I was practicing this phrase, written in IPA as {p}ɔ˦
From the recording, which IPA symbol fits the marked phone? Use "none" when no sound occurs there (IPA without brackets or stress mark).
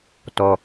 t